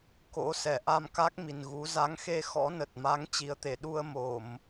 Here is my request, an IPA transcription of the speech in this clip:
k o̰˧˥ s ɛ˧˩ ʔ a˧ m k a˦˥ k̚ m i˨˩ n ɣ u˨˦ z a˨˦ ŋ x e˧ x ɔ̰˧˥ n ə˨˩ t̚ m a˨˦ ŋ t͡ɕ i˨˦ ə̯ t̪ e˧˩ ɗ u˧ ə̯ m o˧˩˨ m

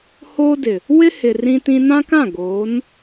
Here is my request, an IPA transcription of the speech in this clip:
h oː˦ d ɪ˨ | w ɪ˦ h ɪ˨ r ĩ˦ t ĩ˦ n ã˦ k ã˦˨ ɡ oː˨˦ n

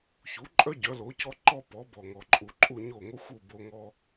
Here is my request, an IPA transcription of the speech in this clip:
ç u˩˥ ǃʼ œ˥ ɟ œ˩˥ l o˩˥ c ɔ˥ ǃ ɔ˥ p ɔ˩˥ b ɔ˩ ŋ ɔ˩ ǃʼ u˩ ǃʼ u˥˩ ɲ o˥˩ ŋ o˥ xʷ u˥˩ b o˧ ŋ ɔ˧

